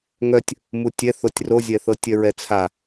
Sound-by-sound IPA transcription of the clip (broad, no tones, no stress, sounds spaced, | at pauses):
ŋ œ tʲ | m u tʲ ɛ θ o tʲ r o zʲ ɛ θ ɤ tʲ œ ɹ ɛ t͡sʰ a